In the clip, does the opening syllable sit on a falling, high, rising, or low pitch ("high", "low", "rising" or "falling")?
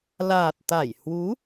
low